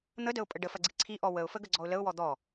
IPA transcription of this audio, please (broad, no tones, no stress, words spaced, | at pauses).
n̪ədəʊ̯pʼə ɖəfɐɡ͡ǀi ǀʰiʔɔ wəʊ̯fəɡəɡ͡ǀɔʊ̯ ləʊ̯wɔ d̪ɔ